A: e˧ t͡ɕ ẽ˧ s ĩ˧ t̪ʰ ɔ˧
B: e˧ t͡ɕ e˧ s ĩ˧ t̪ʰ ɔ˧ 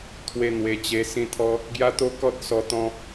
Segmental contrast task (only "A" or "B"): B